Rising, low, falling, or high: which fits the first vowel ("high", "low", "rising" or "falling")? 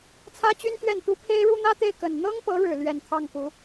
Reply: high